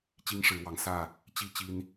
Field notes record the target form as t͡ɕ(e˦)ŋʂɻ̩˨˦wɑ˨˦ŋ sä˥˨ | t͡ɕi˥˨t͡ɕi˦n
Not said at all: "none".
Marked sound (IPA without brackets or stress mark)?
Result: i˦